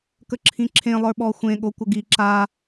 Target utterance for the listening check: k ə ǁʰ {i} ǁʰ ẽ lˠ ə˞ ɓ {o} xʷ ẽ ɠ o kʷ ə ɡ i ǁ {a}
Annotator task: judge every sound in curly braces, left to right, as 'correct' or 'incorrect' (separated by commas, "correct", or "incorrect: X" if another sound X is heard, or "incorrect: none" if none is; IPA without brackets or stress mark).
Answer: incorrect: ĩ, incorrect: ɔ, correct